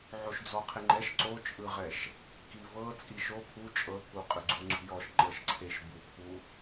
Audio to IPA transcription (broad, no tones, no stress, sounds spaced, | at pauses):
ʕ o ʃ d͡z ɔ qʰ e ŋ͡ǃ ɛ ʃ ǀ o t͡ʃʼ ɯ ʁ ɛ ʃ | k i v ɤ t͡sʼ i ʃ o pʰ u t͡ʃʼ ɤ k u qʼ ɯ ɡ͡ǀ u ŋ͡ǀ ṳ j ɔ ʃ ŋ͡ǃ ɤ ʃ ǀʰ e ʃ b u pʰ u